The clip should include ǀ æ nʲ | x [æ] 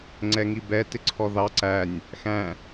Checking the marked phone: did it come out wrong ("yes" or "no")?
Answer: yes